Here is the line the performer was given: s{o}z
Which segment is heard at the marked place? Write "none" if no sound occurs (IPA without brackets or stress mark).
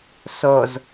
o